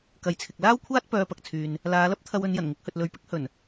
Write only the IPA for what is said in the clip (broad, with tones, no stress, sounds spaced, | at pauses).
k ɐ˨ j t͡sʰ ɪ˨ k̚ l aː˥ w kʷʰ aː˥ t̚ p œː˧ p ɐ˨ k̚ t͡sʰ yː˨ n | l aː˨˧ l ɐ˥ p̚ t̪ʰ ɐ˧ w ɵ˨˧ n j ɐ˨˩ n ŋ ɪ˨˥ k̚ h ɵ˨ t̚ l ɵ˨˥ ɥ p ɪ˥ k̚ h ɵ˨˩ n